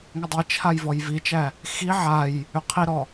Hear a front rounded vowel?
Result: yes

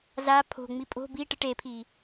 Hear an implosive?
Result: no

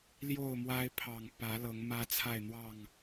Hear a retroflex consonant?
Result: no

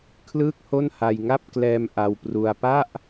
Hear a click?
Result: no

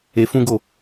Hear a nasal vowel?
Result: yes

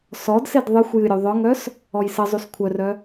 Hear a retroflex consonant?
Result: no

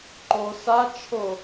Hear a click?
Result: yes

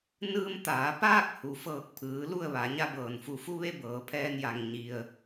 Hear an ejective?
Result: no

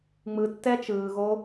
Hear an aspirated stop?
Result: no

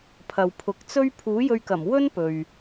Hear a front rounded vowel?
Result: no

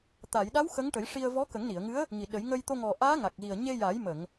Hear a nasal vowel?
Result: no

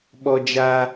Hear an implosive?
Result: yes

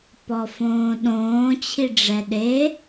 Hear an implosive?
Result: yes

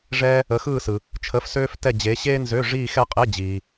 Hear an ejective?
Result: yes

